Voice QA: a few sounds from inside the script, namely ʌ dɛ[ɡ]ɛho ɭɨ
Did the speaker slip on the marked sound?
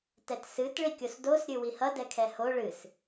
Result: yes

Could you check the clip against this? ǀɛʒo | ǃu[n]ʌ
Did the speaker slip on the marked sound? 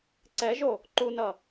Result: no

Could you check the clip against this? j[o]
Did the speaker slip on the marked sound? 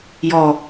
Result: yes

